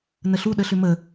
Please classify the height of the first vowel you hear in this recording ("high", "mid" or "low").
mid